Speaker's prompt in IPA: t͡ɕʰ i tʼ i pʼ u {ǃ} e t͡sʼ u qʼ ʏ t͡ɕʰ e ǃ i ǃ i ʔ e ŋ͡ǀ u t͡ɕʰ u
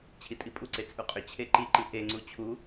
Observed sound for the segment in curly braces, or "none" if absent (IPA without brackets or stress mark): ǀ